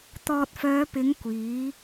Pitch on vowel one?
low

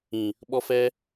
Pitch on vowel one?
low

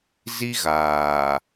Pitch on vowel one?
high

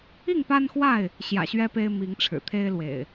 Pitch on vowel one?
falling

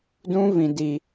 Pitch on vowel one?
high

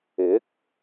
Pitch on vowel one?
rising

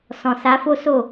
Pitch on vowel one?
low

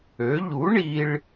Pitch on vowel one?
rising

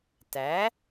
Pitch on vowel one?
rising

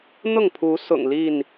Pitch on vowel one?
falling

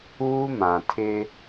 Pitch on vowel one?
high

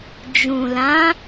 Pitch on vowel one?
low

